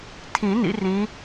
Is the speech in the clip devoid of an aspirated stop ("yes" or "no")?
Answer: no